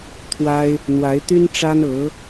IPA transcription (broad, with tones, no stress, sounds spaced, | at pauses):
t̪ʰ w a˥ ɪ̯ | n̪ w a˧˥ ɪ̯ t̪ y˥ n ʈ͡ʂ a˥ n ɤ˧˥